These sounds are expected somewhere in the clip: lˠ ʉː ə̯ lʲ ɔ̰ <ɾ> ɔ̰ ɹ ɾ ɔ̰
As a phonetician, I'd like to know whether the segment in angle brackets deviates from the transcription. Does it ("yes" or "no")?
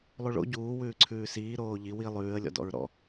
yes